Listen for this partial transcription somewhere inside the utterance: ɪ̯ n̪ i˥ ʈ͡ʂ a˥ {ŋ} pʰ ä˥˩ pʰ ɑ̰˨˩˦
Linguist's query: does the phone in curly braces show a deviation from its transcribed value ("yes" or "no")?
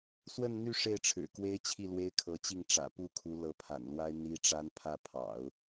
yes